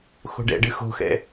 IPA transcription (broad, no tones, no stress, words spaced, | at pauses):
xo̤ɖɛ̰ɖɨ xo̤xɛ̰